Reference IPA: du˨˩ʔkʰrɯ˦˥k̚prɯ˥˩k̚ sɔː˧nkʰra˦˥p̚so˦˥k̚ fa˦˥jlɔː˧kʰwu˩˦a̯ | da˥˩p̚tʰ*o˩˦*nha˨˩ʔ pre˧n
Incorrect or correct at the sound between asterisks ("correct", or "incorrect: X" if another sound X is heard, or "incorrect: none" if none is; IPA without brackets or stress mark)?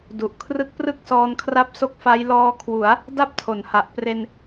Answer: correct